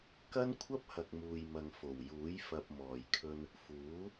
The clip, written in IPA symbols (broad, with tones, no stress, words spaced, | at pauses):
kɐ˥nkʷʰɐ˥p̚hɐ˨k̚ muː˨jmɐ˨ŋ fo˨˩wjuː˨˥j fɐ˨p̚mɔː˨˩jkʰɵ˧n | fuː˨˥